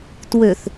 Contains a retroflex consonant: no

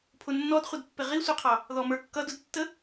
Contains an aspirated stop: yes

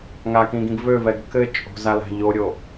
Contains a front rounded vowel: yes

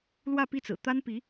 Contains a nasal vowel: no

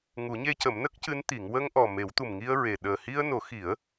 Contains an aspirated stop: no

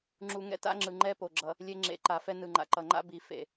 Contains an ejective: no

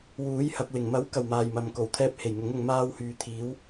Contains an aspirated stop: yes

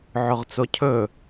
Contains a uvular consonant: yes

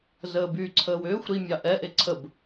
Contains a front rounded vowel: yes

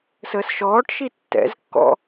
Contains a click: no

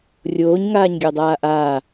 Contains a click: no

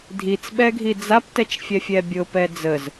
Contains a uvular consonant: no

